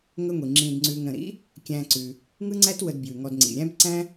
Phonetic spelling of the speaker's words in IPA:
ŋ ə˦ ŋʷ i˩ ŋ͡ǁ ĩ˨ d ŋ͡ǀ ʉ˨ ŋ ɾ ə̃˩ ɾ ḭ˥ | kʲ æ̃˨ ǀ ʉ˩ | ŋ ɯ˥ ŋ͡ǀ æ˥ t w ə˨ d b j ʉ˩ ŋ ɔ˨ d ŋ͡ǀ ḭ˩ ɾʲ æ̃˥ b ǀ æ̃˥

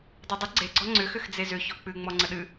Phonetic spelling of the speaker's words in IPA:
dˤ e dˤ ʏ ɡ͡ǀ e ɡ͡ǀ ɔ ŋ͡ǀ ʏ x ʏ x d͡z e z ʏ ç ɔ k͡p ɨ ŋ͡m ɔ ŋ͡ǀ ə ɗ ɨ

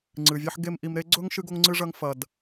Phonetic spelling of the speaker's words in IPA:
ŋ͡ǀ ɨ˩ vʲ ɐ˥ ħ ɡ e˥ m ʔ i˨ m ɾ e˥ ɡ͡ǀ ɵ˥ ŋ ʃ ɨ˥ ɡ o˥ ŋ ŋ͡ǀ ɨ˥ ʐ ɐ˦ ŋ f ɐ˩ d

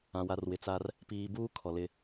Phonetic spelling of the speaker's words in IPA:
ã˨ w a˨ r w ɪ˨ t͡s a˦ r | p iː˨ b uː˦ kʰ ɔ˨ l ɪ˦

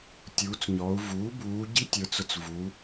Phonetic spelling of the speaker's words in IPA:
tʲ uː˩˧ t͡s ɲ ɔ˩˧ u̯ v uː˩˥ b uː˩˧ ɟ i˦˥ tʲ ə˞˩˧ t͡s ʊ˨˩ t͡s v u˩˧

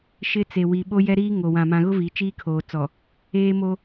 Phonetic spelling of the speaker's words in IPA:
ʃ ɪ˦ t͡s e˨ w i˨ ɓ o˦ j ɛ˦ ɾ iː˦ ŋ o˨ w ã˨ m ã˨ ɣ ʊ˦ v i˨˦ t͡ʃ iː˦ kʰ oː˨ t͡s ɔ˨ | eː˦ m o˦

